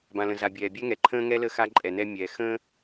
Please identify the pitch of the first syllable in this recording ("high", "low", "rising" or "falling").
low